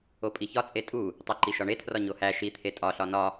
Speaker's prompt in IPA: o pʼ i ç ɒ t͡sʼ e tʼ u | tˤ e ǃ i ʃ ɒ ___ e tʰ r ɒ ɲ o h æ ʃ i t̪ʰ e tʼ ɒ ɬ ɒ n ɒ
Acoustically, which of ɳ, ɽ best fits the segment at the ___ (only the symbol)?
ɳ